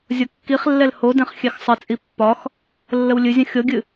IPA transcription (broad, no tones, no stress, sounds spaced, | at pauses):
zʲ ɤ kː i χ lː ɛ l h o d ɛ̃ χ xʲ ɛ x sˤ ə t͡sʼ i pː ɒ x | lː ə w lʲ ɨ zʲ ə̃ xʲ ɤ ɡʲ ɨ